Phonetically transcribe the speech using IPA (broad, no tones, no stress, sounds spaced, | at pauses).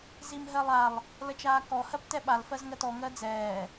z i m ɦ ɜ lˠ a lˠ | l ə t͡ʃ aː k ɔ h ɜ p t ɛ ɓ a l f ɜ z ŋ ɜ t ɔ ŋ ɜ d͡z ɛː